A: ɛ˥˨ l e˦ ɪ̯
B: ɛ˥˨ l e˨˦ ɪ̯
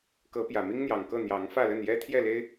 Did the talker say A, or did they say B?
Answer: A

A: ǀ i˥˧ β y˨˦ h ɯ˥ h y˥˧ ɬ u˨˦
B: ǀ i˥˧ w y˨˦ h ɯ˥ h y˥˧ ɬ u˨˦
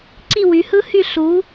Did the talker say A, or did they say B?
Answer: B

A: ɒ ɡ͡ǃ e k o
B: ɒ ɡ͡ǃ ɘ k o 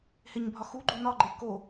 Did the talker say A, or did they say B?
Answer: A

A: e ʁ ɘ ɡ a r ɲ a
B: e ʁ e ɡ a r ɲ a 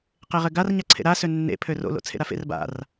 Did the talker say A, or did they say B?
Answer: A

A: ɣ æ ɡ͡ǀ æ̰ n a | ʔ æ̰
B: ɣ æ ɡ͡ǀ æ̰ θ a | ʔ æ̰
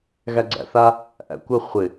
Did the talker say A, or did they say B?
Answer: B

